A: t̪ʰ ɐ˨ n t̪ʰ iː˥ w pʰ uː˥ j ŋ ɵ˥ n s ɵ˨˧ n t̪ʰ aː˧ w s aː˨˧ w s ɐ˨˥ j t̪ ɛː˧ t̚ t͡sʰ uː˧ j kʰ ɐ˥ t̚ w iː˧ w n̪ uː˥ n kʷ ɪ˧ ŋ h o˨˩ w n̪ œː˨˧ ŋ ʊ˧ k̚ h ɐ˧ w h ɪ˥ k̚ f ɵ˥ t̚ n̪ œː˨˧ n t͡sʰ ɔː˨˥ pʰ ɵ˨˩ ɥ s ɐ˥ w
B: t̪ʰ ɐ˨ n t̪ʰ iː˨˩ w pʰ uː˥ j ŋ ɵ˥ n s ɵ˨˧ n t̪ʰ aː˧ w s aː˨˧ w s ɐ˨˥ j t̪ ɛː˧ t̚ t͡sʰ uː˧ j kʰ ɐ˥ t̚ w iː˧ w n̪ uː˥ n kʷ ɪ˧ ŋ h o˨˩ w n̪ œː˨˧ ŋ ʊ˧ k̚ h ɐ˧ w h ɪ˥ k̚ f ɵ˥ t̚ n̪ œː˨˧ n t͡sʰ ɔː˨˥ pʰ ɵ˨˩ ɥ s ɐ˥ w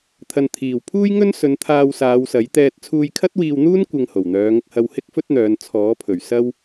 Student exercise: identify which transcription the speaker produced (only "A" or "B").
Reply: B